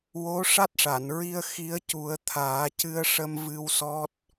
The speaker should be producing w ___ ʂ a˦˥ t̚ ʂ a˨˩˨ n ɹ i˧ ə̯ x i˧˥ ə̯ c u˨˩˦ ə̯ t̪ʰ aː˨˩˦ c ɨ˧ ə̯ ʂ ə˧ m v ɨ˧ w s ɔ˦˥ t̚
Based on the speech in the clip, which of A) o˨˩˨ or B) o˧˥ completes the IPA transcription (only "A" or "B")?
B